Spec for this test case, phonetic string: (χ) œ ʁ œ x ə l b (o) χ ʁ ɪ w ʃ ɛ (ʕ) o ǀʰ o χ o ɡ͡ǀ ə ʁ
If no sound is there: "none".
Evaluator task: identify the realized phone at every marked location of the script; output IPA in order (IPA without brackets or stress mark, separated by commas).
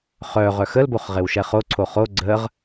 χ, o, χ